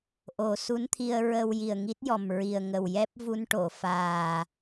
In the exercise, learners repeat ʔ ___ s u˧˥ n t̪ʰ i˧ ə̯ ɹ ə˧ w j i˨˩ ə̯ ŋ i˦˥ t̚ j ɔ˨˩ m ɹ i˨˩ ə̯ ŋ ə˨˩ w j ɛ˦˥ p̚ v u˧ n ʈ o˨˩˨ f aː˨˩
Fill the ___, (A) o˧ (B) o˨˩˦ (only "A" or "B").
B